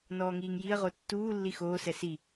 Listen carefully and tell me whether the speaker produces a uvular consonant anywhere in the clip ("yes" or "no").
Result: yes